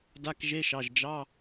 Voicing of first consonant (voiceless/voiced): voiced